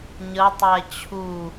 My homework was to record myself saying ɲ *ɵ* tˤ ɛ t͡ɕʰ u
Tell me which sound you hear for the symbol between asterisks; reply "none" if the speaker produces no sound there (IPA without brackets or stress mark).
ə